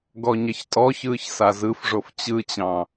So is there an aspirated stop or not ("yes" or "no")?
no